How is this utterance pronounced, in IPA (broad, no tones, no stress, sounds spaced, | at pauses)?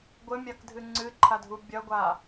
ɡʷ ɘ mʲ a k dʱ ɨ ŋ͡ǀ ɨ ǃʰ a dʱ u bʲ ɐ ɡʷ a